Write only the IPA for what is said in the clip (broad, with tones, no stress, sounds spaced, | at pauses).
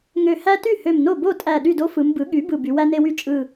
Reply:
ŋ ø˧˩ h æ˦ t y˥˩ h ø˧˩ m n o˥˩ b o˥˩ tʼ æ˧˩ ɗ y˥˩ d o˦ f ɯ˩˧ m b ɯ˩˥ ɠ y˩˥ b ɯ˧˩ b y˩˧ w æ˦ n e˦ w y˦ t͡ʃʼ ɯ˧˩